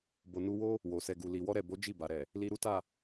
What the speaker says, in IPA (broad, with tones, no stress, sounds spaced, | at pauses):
b o˨ n u˧ w o˦ | w o˨ s ɛ˨ ɡ u˨ l i˨ w ɔ˧ ɾ ɛ˨ b o˨˦ d͡ʒ i˦˨ b a˨ ɾ ɛ˨ | l i˧ ɾ u˦ t a˦˨